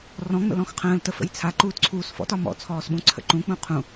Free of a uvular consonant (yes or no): no